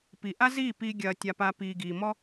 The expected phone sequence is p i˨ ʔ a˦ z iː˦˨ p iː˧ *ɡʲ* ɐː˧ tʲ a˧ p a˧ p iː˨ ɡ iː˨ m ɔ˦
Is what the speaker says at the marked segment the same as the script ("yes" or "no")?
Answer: yes